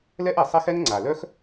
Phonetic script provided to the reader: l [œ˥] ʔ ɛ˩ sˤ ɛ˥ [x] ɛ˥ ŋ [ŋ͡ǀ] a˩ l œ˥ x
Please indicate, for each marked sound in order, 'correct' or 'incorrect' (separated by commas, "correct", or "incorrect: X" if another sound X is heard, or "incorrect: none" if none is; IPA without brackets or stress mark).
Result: incorrect: ɛ˥, correct, correct